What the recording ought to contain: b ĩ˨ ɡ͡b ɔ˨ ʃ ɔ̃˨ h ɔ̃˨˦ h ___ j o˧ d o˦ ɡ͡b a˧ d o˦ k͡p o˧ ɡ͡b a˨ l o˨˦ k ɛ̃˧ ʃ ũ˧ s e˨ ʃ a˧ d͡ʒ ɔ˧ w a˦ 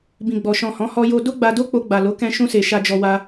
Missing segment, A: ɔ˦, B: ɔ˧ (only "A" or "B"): B